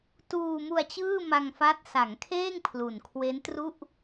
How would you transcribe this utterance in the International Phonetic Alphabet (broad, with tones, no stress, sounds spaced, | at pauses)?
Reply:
t uː˧ m u˧ a̯ t͡ɕ ɯː˥˩ m a˧ ŋ f a˦˥ t̚ s a˩˦ ŋ kʰ eː˥˩ ŋ pʰ l u˨˩ n kʰ w e˦˥ n t r u˥˩ ʔ